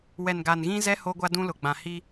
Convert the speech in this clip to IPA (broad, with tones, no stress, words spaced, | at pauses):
wɛ˨nɡa˨nɣĩ˦zɛ˦ ho˦ɡʷa˦dũ˦lʊ˨ ɡ͡bã˨hi˦